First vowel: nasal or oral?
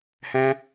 nasal